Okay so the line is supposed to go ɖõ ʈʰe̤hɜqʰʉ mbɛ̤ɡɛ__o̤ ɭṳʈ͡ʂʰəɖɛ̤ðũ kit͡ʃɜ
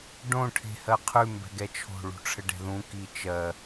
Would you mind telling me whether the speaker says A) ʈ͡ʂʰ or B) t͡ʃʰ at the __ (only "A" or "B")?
B